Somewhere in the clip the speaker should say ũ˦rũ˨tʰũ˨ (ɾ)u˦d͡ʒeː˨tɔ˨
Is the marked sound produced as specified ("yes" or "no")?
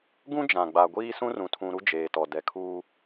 yes